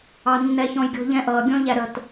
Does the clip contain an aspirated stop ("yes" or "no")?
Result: no